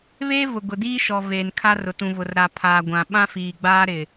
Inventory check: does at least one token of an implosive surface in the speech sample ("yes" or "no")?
yes